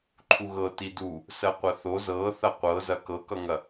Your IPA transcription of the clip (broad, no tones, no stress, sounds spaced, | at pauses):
ǃʰ u ɣ ɤ t i d u | s ɜ qʷ ɐ θ o z ɤ θ ɐ qʷ ɤ z ɐ k ɤ k ʌ ŋ ɐ